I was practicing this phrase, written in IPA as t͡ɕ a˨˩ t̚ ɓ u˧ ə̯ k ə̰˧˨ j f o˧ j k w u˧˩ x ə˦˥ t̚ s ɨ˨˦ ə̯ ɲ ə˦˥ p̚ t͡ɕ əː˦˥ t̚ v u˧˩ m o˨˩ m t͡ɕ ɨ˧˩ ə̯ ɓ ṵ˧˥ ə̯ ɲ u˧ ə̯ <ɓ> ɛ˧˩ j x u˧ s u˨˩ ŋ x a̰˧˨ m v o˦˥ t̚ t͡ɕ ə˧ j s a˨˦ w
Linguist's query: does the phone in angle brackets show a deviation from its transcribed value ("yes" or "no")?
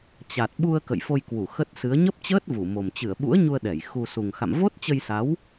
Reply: yes